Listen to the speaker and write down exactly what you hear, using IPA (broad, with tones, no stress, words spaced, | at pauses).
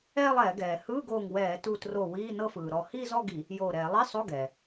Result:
ɛː˥˧lˠɛː˧˩˧ɡɛː˩ hɯː˧˥˧ɡoː˧˩ŋ wɛː˧˩˧tu˧˩tro˧˩ wiː˧˥˧nɤ˥˧fɯː˩ ɾɔ˧˩ hiː˥˧zɔ˥˧ɡi˧˩˧ | joː˧˩ɾɛː˧˩˧ lˠi˧˥˧sˤo˧˥˧ɡɛː˩